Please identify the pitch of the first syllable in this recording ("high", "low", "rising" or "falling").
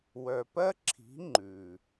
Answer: low